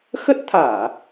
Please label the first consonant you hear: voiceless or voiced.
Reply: voiceless